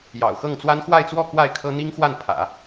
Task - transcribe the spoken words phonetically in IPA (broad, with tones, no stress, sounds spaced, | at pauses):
j ɑ̰˨˩ ʊ̯ x ɤ˥˩ ŋ t͡s w a˥ n x w a˥˧ ɪ̯ t͡s w ɔ˥˧ k w a˥˩ ɪ̯ kʰ ɤ˥ n̪ i˥ ŋ x w a˥˩ n pʰ ä̰˨˩˦